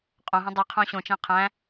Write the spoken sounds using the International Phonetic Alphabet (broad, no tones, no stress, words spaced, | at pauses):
qʼõɦɛ̃ dˤiqʰõ ɕõt͡ʃæ̃ qʰæ̃